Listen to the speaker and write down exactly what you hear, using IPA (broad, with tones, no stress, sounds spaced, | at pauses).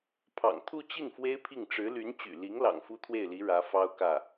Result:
pʰ ɑ̰˨˩ ŋ t̪ʰ u˥˧ t͡ɕ i˥˩ n f w e˥ ɪ̯ pʰ i˥˩ ŋ ʈ͡ʂ ɻ̩˧˥ l y˧˥ n t͡ɕ y̰˨˩ l i˧˥ ŋ l ɑ̰˨˩ ŋ f u˥ t̪ʰ w e˥˩ ɪ̯ l i˧˥ ɻ ä˧˥ f ɑ˥ ʊ̯ k ä˥˩